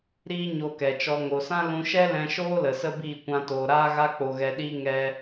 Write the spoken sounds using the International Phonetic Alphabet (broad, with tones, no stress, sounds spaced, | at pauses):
ɾ iː˦ ɲ o˧ k ɛ˨ t͡ʃ ɔ˧ ŋ o˨ s ã˦ l ũ˧ ʃ ɛ˦ l ɛ̃˧ ʃ oː˦ l ə˨ s ə˦ b iː˦˨ kʷ ã˧ t oː˨ ɾ aː˦ ɣ a˧ k͡p o˨ ɣ ɛ˨ ɗ iː˧ ŋ ɛ˧